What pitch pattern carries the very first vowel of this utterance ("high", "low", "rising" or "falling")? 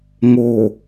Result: low